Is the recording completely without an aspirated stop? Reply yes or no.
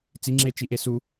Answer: yes